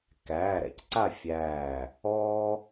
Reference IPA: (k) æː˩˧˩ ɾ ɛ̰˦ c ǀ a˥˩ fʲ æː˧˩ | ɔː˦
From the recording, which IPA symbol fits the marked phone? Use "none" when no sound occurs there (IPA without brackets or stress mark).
k